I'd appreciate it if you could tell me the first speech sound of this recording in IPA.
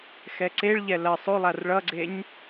x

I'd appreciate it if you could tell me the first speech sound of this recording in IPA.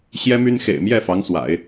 ɕ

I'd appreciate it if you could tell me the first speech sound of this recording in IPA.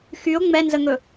x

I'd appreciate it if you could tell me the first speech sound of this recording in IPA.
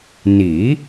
n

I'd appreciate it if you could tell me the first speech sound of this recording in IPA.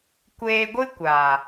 kʷ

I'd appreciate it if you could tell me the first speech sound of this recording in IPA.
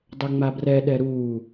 dˤ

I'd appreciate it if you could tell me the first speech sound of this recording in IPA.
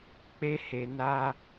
k͡p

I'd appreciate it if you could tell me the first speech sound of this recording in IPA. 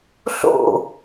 ɬ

